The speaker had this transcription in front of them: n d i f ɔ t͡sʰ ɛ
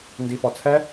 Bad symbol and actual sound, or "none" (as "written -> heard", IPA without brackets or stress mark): none